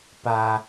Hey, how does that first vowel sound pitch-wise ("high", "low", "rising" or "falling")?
high